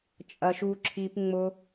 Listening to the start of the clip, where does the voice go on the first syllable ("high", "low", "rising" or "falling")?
low